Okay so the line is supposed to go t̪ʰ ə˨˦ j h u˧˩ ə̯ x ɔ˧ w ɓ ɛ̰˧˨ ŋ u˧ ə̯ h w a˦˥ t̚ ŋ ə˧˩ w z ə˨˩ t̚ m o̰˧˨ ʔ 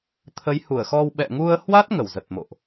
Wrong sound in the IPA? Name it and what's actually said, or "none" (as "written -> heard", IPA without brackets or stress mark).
none